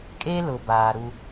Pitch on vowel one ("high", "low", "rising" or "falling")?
high